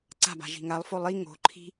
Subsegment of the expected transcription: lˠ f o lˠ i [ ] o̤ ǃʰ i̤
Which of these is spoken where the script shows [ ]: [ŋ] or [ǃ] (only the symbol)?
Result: ŋ